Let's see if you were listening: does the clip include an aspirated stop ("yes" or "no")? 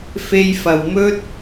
no